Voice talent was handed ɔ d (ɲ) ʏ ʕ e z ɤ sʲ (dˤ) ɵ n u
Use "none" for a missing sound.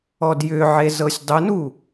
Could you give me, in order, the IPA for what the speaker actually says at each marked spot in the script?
j, dˤ

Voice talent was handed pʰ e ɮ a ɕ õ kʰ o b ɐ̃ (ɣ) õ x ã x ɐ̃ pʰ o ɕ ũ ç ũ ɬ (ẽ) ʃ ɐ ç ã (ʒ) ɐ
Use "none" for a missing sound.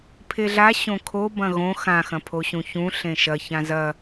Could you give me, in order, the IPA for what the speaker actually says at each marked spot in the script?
ɣ, ẽ, z

